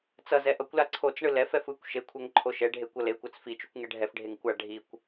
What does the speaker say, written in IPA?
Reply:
t͡sʌzɛ ʔʌkʷla ǀʰot͡sɳɯ lɛfɛf ɯkʷ ʃekʷʰɛŋ ǃʰoʃɛɖʱe kʷʌlekʷat͡s fit͡ʃukʷ ŋɛɖʱɛfɖʱeŋ kʷa ɖʱikʷ

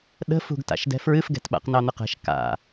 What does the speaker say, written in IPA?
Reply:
ɗə̤fṳɡta̰ʃ dɛ̤fɹɨfɡɛ̤tɓa̰q nɑn̪əqɛ̤ʃ ka̰

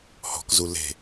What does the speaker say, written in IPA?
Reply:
hɔ̤k zule̤

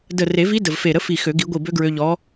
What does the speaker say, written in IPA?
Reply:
də˧˩ re˨˩˦vi˧˥ də˧˩vfe˧˩ɾə˧˥ fi˧˩xø˨˩˦ ɡi˨˩˦ɡʷi˧˩bø˧˥ɡɹø˧ ʎɔ˧˥

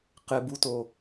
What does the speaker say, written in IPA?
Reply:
qɪbuto

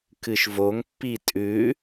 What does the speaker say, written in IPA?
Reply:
kɨʃvoŋpːi tʼʉ

